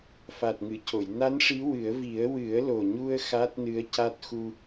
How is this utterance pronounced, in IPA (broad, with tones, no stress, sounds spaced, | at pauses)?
f a˨˩ t̚ ŋ ɨ˨˩˨ c o˨˩˨ j n a˧˥ n ʂ i˧˥ w ɨ˨˩˦ ə̯ v i˨˩˦ ə̯ w ɨ˨˩˦ ə̯ l o˨˩ ɲ u˧ ə̯ x a˦˥ t̚ n ɨ˧˥ ə̯ c a˦˥ t̚ x u˧